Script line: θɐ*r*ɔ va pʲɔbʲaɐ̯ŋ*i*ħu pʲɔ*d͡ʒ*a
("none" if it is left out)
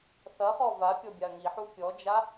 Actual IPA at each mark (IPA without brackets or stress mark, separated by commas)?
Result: χ, i, d͡ʒ